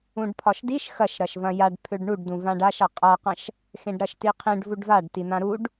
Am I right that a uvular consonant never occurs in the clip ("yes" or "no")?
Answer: no